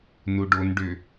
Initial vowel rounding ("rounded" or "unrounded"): rounded